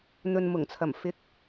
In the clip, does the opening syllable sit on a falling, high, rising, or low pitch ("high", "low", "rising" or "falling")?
low